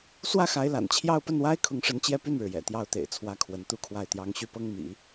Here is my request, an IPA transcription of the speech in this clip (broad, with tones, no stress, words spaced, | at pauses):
swä˥˩xa˧˥ɪ̯la̰˨˩nt͡ɕʰjɑ˥˧ʊ̯ pə˥˩nwa˥ɪ̯kʰʊ˧˥ŋʂə˧˥n t͡ɕjɛ˥˧py˥˩nɻɻ̩˩jɛ̰˨˩ t̪jɑ˧˥ʊ̯t̪ḛ˨˩ɪ̯t͡sʰwä˧˥ kʰwə˧˥nt̪u˥kʰwa˥˩ɪ̯t̪jɑ˥ŋ ɕy˥˩pɤ˥ŋ mḭ˨˩˦